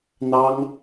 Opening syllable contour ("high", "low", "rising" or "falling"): high